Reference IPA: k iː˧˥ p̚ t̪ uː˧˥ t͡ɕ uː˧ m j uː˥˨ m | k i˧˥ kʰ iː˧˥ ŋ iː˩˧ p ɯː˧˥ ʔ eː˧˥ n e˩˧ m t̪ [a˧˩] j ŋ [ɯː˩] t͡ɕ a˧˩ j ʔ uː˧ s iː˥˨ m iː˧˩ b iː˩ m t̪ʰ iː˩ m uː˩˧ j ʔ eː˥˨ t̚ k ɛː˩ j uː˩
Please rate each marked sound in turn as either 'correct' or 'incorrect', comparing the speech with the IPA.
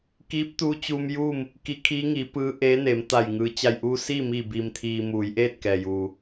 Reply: correct, correct

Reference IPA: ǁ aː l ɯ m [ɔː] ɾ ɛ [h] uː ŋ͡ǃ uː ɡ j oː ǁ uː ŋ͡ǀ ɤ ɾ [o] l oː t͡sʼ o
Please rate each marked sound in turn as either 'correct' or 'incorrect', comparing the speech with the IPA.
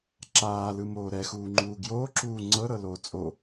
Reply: incorrect, incorrect, incorrect

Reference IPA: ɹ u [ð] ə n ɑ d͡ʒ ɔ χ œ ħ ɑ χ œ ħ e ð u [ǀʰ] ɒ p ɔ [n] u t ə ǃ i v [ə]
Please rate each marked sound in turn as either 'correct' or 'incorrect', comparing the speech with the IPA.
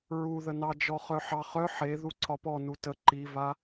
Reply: correct, correct, correct, incorrect

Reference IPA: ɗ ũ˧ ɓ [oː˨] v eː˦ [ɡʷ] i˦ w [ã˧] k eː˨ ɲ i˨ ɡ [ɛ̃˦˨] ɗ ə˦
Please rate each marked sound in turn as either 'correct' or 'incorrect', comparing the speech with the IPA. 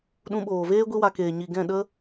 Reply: correct, correct, incorrect, correct

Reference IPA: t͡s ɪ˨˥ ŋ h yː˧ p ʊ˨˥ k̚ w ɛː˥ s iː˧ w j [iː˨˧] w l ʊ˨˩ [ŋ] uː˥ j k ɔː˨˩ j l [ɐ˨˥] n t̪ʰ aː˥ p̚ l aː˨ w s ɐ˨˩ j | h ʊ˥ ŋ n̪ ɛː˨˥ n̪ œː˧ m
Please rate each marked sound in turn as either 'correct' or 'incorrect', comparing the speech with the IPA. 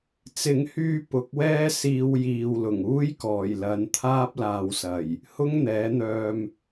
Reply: incorrect, correct, correct

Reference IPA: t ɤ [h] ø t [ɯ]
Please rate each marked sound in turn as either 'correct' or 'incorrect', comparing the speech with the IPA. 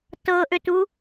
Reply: incorrect, incorrect

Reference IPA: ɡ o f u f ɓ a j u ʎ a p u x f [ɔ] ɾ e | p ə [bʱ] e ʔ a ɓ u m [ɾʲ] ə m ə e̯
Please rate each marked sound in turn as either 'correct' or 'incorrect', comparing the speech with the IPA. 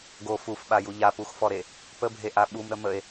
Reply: correct, correct, incorrect

